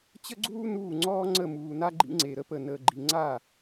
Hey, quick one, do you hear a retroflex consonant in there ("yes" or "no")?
no